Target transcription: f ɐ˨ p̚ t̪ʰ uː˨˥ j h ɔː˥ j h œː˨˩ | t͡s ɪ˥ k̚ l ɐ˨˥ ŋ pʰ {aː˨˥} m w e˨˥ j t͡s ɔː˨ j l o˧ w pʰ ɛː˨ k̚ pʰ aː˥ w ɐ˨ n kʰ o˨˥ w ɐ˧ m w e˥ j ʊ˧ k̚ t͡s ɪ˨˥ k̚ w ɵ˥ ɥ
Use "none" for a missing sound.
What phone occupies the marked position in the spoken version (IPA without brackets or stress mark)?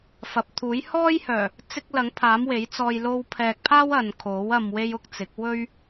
aː˨˥